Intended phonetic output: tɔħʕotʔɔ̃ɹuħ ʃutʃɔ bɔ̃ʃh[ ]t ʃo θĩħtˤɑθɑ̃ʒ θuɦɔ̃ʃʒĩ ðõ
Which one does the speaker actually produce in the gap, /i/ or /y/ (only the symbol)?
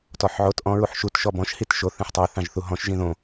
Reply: i